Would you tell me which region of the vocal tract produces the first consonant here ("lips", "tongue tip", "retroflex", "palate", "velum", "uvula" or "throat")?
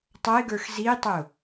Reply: tongue tip